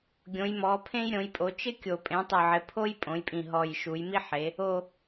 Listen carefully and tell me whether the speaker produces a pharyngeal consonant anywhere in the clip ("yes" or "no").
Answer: yes